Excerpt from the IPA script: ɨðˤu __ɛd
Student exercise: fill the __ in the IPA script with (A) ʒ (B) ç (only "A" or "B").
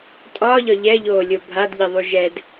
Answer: A